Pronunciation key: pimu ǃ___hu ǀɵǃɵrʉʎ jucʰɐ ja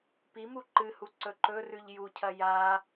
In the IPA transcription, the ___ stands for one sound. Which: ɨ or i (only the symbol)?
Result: ɨ